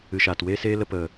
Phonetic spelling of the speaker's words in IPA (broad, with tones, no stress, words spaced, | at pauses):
ɨ˨ʃaː˨t weː˦seː˦lə˧ pə˨